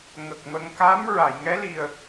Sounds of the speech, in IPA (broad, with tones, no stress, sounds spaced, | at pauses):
ŋ ə˨˩ k̚ m ə˧ ŋ k a˧˥ m ɹ a˨˩˨ j ŋ ɛ˧˥ l i˨˩ ə̯